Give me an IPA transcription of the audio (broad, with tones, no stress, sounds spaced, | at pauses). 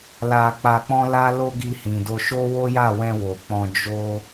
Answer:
l a˧ k͡p a˧ k͡p ɔ̃˦ l a˦ l o˦ ɡ i˧ h ĩ˨ d o˧ ʃ o˦ w o˦ j a˦˨ w ɛ̃˧ w o˨ k͡p ɔ̃˧ d͡ʒ o˦